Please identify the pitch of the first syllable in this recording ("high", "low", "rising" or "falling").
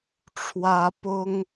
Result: high